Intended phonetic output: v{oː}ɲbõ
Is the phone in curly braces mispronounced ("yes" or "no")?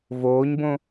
no